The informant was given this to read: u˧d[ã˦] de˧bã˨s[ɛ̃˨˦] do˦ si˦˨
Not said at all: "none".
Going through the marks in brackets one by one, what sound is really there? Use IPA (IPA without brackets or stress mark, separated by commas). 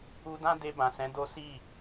ã˦, ɛ̃˨˦